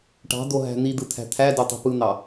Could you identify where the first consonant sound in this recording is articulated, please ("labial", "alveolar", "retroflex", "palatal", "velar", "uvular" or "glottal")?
retroflex